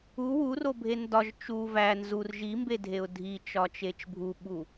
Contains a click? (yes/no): no